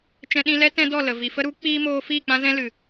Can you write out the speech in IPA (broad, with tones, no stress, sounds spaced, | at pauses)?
t͡ʃ ɛ̃˧ ɗ ĩ˧ l ɛ˦ t ɛ̃˦ d ɔ˦˨ l ə˨ v i˨ f ə˧ ɾ u˨˦ k͡p iː˦ m oː˧ f iː˦˨ k͡p ã˦ z ɛ̃˦ l ɨ˨